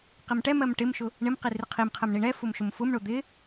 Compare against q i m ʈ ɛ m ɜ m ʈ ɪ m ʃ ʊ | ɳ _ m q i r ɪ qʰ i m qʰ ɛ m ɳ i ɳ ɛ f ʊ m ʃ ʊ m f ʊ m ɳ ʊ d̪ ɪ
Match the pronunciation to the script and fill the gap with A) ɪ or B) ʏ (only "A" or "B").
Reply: A